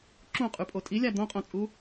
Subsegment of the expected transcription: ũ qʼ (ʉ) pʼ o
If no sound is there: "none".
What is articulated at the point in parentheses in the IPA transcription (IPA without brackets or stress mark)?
ʉ